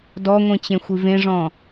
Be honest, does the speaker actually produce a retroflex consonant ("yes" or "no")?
yes